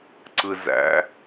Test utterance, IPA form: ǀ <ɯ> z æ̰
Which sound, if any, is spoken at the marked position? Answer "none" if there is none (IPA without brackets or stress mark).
ɯ